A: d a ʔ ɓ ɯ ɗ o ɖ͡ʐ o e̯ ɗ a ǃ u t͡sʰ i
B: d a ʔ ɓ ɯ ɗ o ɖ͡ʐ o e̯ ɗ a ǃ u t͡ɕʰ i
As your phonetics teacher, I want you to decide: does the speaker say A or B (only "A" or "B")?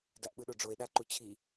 B